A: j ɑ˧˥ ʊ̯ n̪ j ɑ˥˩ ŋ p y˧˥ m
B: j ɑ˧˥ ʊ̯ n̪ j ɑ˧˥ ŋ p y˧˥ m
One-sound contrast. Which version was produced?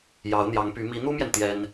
B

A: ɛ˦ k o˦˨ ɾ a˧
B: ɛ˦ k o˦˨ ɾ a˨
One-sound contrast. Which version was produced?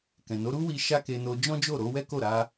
A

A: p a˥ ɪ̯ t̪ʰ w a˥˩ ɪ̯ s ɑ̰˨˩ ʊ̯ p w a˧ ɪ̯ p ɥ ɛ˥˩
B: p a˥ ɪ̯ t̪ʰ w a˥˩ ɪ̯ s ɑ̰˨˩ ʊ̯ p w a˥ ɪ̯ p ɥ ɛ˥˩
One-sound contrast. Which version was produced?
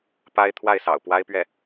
B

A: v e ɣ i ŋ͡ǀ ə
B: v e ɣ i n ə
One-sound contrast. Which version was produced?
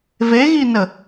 B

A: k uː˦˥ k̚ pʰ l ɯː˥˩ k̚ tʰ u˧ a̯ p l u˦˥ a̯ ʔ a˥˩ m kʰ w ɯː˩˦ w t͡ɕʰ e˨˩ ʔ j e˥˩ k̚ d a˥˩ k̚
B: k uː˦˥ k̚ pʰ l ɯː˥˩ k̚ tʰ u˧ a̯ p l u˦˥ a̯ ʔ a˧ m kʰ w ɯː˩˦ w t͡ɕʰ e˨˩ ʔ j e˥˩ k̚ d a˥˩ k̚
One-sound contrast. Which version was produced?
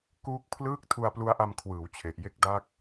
B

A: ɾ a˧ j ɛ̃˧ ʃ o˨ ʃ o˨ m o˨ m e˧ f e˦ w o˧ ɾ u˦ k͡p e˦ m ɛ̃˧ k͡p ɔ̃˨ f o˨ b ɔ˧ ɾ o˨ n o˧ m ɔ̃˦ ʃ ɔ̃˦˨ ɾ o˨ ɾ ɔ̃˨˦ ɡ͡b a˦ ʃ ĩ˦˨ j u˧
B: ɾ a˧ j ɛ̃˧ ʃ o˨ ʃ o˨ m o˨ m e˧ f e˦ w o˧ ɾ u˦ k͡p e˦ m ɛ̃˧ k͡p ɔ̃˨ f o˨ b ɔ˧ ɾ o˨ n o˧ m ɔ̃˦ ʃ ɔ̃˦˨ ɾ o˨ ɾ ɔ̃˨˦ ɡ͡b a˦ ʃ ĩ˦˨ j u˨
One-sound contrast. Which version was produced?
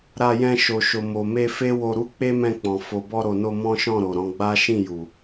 B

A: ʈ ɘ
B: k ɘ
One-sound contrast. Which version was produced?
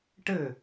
A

